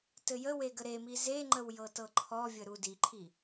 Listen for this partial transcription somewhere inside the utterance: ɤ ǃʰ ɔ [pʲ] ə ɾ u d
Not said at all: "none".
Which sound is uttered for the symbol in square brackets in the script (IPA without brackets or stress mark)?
vʲ